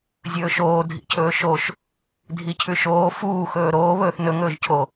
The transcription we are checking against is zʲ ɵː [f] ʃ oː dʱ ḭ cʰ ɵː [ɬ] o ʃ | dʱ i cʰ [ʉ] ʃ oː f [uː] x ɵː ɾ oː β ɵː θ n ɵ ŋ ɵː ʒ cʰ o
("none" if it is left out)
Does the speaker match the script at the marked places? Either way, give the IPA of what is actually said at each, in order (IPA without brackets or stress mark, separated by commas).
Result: none, ʃ, ʉ, uː